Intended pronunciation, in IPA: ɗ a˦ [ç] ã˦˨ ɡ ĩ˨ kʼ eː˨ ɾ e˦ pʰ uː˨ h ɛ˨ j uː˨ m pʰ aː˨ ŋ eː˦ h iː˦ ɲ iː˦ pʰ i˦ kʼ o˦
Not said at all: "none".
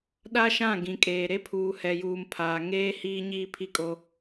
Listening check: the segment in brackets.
ʃ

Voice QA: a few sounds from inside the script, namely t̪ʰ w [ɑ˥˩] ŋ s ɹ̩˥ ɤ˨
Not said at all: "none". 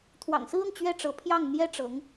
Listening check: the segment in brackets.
ɑ̰˨˩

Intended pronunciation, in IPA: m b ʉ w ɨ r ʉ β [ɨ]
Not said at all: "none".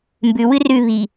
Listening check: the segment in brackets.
i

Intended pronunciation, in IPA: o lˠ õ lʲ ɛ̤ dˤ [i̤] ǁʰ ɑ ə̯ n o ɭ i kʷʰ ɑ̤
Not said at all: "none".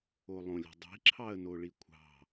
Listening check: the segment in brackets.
i̤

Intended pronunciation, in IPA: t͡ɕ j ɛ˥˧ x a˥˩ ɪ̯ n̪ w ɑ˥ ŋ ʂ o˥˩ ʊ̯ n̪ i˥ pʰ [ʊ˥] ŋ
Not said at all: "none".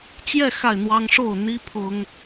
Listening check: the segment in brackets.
ʊ˥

